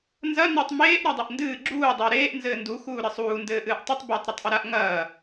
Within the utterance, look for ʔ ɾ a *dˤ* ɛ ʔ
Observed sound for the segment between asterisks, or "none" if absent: dˤ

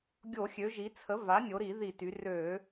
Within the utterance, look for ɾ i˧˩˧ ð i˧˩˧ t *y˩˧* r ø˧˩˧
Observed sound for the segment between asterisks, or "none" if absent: y˩˧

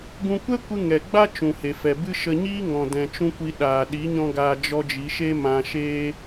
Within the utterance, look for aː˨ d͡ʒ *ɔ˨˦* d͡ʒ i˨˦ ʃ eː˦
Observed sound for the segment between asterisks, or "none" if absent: ɔ˧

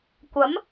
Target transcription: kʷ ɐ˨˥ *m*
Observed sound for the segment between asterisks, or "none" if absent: m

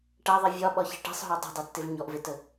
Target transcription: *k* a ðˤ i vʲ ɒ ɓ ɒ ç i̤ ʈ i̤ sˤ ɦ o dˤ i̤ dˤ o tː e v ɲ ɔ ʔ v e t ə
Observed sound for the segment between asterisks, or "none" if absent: ʈ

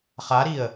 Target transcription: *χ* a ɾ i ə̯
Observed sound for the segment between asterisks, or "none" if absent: χ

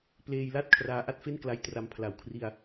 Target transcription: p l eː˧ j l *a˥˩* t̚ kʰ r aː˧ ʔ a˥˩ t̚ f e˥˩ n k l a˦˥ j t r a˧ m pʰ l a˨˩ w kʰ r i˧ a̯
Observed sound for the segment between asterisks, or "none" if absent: a˥˩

